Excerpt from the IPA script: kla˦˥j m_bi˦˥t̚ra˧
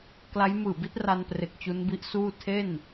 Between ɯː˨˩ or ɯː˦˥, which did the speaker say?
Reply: ɯː˨˩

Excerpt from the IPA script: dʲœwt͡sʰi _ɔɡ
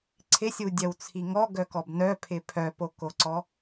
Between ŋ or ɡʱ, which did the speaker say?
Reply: ŋ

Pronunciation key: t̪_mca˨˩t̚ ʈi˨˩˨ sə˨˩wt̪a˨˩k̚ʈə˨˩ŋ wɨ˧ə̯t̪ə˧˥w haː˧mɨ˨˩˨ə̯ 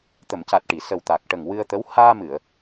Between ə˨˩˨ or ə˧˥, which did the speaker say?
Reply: ə˨˩˨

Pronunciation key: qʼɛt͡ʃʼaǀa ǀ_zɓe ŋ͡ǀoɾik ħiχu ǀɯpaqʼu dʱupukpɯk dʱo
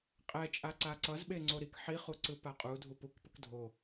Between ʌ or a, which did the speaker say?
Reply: ʌ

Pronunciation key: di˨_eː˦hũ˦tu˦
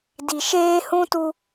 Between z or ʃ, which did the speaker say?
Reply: ʃ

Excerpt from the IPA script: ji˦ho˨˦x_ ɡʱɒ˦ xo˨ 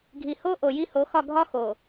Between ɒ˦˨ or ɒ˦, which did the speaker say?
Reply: ɒ˦˨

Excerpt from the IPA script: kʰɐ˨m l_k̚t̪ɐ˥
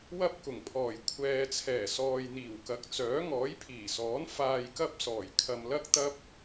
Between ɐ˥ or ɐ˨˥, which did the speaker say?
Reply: ɐ˥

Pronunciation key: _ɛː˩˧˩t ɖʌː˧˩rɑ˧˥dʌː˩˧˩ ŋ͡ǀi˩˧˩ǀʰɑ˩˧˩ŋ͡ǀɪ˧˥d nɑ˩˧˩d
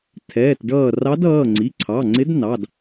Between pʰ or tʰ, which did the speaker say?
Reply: tʰ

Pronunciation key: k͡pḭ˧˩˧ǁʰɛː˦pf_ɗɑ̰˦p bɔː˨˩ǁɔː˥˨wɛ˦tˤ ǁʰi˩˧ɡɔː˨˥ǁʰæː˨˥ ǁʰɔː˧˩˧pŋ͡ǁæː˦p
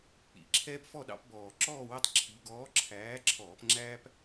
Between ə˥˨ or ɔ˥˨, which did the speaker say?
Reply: ɔ˥˨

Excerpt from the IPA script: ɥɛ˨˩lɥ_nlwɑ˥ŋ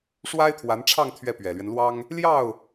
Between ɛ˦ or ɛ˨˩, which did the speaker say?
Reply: ɛ˦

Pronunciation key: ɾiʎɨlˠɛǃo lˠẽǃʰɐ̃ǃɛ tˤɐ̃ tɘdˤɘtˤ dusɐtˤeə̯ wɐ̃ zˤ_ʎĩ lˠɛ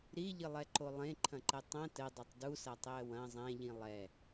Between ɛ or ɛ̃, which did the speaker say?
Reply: ɛ̃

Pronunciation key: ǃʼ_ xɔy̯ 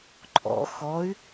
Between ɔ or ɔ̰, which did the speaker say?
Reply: ɔ̰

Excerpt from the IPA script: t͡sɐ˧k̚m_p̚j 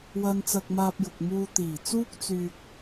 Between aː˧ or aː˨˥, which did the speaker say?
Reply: aː˧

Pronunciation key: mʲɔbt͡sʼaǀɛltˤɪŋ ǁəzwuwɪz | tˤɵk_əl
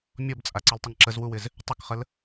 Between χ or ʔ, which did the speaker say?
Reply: χ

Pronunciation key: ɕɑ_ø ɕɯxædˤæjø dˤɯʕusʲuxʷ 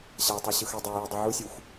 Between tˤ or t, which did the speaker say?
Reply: tˤ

